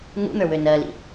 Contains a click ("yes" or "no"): no